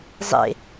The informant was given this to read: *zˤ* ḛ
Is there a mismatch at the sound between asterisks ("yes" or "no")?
no